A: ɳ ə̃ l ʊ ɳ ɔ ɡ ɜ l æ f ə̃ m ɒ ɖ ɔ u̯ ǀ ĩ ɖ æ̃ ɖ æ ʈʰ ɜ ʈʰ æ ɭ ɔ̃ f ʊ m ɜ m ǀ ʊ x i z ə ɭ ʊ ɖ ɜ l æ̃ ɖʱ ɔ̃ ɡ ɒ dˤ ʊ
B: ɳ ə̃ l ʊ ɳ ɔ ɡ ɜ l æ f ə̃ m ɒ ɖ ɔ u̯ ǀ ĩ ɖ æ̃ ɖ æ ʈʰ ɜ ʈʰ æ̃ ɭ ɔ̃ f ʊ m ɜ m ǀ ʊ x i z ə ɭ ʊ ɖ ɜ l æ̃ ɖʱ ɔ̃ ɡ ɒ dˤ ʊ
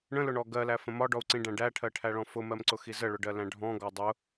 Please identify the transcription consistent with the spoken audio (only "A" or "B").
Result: A